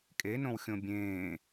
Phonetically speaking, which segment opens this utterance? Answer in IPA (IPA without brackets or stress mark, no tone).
kʼ